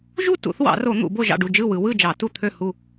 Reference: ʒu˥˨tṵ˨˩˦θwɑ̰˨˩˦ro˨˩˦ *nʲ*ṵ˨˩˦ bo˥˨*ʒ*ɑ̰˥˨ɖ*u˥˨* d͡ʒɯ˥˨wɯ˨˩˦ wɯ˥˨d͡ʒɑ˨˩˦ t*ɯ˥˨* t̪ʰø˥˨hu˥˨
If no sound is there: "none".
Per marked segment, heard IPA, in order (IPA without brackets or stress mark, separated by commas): n̪, ʒ, u˥˨, u˥˨